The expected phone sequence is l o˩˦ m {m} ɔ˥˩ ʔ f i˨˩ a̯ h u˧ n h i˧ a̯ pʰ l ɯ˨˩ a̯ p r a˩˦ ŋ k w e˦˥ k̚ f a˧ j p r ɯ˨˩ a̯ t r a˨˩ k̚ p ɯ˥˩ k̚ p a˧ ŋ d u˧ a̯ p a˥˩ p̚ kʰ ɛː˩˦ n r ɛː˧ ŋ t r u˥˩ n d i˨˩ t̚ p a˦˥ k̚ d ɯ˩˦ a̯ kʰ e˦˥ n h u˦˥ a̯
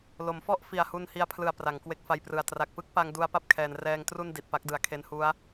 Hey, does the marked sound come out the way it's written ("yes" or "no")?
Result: no